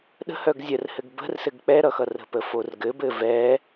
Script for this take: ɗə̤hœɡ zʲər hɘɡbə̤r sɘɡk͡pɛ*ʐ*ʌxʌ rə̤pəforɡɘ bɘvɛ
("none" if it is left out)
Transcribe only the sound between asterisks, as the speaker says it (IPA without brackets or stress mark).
ɾ